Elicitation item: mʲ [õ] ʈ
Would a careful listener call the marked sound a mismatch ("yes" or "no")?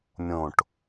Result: no